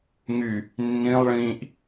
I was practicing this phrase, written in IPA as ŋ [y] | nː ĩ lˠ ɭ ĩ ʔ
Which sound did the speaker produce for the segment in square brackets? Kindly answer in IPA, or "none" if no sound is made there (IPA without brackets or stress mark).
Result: y